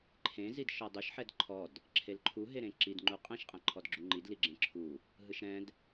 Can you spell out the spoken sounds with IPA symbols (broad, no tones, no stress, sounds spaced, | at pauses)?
ǃʰ ẽ z i d ʃ ɔ dˤ u ʃ ħ ɛ d ǃʰ ɔ d | ǁʰ e l ǃʰ u ɦ e ɾ ẽ ǁ i d ŋ͡ǃ u qʼ ẽ ʃ qʼ ɛ̃ ǃʰ ɔ d ɡ͡ǁ u ŋ͡ǃ i d l i ɡ͡ǁ ẽ ǁʰ u | ɦ ɯ ʃ ɾ ɛ̃ d